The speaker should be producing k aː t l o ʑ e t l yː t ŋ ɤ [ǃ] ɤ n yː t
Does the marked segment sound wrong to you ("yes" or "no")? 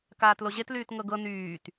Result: yes